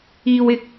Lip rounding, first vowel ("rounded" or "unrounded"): unrounded